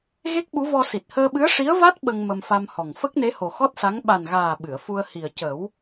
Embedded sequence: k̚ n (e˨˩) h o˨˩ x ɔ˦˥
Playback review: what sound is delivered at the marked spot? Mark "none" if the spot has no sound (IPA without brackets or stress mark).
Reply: e˧˥